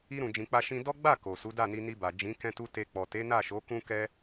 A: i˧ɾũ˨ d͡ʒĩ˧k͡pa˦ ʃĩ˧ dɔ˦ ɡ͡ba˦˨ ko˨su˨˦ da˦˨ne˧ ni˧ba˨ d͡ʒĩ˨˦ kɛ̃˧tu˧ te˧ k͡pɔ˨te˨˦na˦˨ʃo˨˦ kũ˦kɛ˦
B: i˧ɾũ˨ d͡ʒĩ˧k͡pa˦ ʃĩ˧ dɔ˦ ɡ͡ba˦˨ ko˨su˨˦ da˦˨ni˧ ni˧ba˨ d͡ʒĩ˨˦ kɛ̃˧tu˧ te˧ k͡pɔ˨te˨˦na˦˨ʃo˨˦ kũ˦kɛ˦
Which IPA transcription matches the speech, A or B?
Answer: B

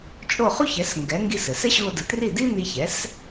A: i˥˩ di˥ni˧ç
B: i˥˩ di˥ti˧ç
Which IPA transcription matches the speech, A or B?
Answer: A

